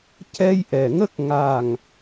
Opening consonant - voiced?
no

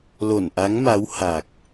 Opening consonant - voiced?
yes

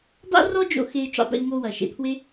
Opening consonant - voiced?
yes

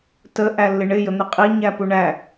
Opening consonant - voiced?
no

